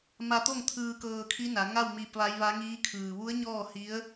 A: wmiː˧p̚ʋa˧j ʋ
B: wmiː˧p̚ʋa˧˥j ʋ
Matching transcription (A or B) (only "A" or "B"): B